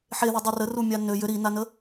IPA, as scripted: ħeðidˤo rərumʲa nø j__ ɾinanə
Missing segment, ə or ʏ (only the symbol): ʏ